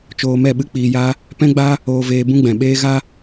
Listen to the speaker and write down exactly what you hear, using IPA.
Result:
t͡ʃ oː˧ m ɛ˦˨ ɓ ɨ˦ k͡p iː˧ j a˦ | p ɛ̃˦ ɡ͡b a˦ | oː˧ v eː˧ b ũ˦ ɡ͡b ɛ̃˨ ɓ eː˦ ɣ a˦

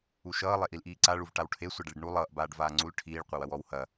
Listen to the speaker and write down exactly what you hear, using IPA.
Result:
u ʃ ʌː lˠ e ʔ i l ʔ iː ǀ a ɭ u v ʈ a w ʈʰ e sʷ a ɖ ɭ i ɖ ɳ u lˠ ʌː ʔ b aː ɖ v aː ŋ͡ǀ u l ʈʰ iː ɭ qʷ a w ɐ w ɔ w h ɐ

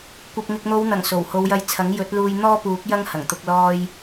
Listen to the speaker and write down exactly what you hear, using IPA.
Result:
kʷ ɐ˨ p̚ ŋ ɪ˨ k̚ n̪ o˨˧ w n̪ ɐ˨˩ ŋ s o˨˩ w h o˨˧ w j ɐ˧ j t͡sʰ ɐ˨˥ ŋ j ɵ˨˥ t̚ l uː˧ j n̪ ɔː˥ p uː˨˥ k̚ j ɐ˥ ŋ h ɐ˨˩ ŋ t̪ ʊ˧ k̚ l ɔː˧ j

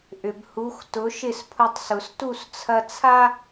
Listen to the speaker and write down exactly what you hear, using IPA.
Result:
ʔ ʏ˩ b h u˩˥ x t ʊ˩˥ ʃ ɪ˥˩ s pʰ ʊ˧ tˤ s ʊ˩ s t u˥˩ s t͡sʰ ɐ˧ t͡sʰ a˥

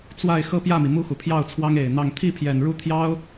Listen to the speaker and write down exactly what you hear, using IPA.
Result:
t͡s w a˥˧ ɪ̯ x ɤ˥˧ p j ä˥˩ m i˩ m u˥˩ x u˩ pʰ j ɑ˥˩ ʊ̯ t͡sʰ w ɑ˥ ŋ e˨˩ ɪ̯ n̪ ɑ˥˧ ŋ t̪ʰ i˥˩ pʰ j ɛ˨˩ n ɻ u˥˩ t̪ʰ j ɑ˥ ʊ̯

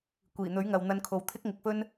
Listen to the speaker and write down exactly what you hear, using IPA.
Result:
kʷ iː˨˩ n̪ ɵ˨˥ ɥ ŋ ɐ˨ w n̪ ɐ˧ n kʰ o˨ w t̪ʰ ɪ˥ k̚ ŋ ɪ˨˥ k̚ f ɵ˥ n

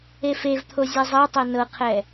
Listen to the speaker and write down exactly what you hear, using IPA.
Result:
e f e v t̪ʰ o zʲ ɛ zˤ ɛ tˤ e n ɤ qʰ ɛ

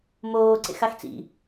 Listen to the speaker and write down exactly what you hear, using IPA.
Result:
m oː ǀ ḛ x a x t͡s ḭ

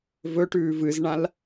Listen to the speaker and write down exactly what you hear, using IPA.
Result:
v ɵ ʈ ʉː v ɨ z ɳ ã l

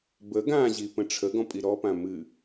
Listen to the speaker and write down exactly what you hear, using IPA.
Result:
b ə ɡ ã ʑ i p ə̃ ʈ͡ʂʰ ə ɡ ɔ̃ pʼ i ɾ ɔ p ã m ɨ

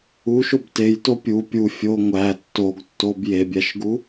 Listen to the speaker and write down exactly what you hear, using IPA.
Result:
u ʃ o b t e j t o pʲ u pʲ u fʲ o ŋʷ æ tː o ɡ tː o b j e bʲ æ ʃ ɡ u

